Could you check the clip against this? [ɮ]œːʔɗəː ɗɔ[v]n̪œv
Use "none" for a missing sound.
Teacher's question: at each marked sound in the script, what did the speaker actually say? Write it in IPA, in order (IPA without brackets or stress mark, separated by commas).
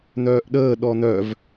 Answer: n̪, none